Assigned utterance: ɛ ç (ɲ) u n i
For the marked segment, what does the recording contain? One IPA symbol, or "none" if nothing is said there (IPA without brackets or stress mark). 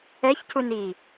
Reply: c